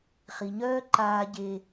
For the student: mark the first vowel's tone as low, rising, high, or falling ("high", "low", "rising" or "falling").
low